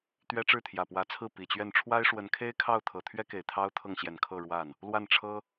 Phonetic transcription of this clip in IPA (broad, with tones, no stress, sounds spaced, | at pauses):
t̪ ɥ ɛ˥ ʈ͡ʂ ɻ̩˥˩ t̪ʰ j ä˨˩ p w ä˧˥ t͡sʰ ɹ̩˥˩ p i˨˩ t͡ɕ ɥ ɛ˥˩ n ʈ͡ʂʰ w a˥ ɪ̯ ʂ w ə˧˥ n kʰ e˥ ɪ̯ kʰ ɑ˥˩ ʊ̯ t̪ʰ ɤ˨˩ t̪ʰ ɥ ɛ˥ k e˨˩ ɪ̯ t̪ʰ ɑ˥ ʊ̯ t̪ʰ ɤ˥˩ ŋ ɕ j ɛ˨˩ n kʰ ɤ˥˧ ɻ w a˥˩ n | l w a˥˩ n ʈ͡ʂʰ ɤ˥